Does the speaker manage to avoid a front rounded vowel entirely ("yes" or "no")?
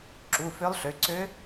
no